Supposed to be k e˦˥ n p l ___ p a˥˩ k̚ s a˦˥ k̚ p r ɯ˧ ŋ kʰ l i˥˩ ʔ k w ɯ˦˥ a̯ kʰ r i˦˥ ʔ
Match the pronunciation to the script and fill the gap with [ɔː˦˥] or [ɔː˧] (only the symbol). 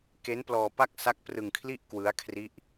ɔː˧